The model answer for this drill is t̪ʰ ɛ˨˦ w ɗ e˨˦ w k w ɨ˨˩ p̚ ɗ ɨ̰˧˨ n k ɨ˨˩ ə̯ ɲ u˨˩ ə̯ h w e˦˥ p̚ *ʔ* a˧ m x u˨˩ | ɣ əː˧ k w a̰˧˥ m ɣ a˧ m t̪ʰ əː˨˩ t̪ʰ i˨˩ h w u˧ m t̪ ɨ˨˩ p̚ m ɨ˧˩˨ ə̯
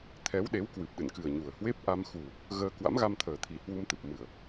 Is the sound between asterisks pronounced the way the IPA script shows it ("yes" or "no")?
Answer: yes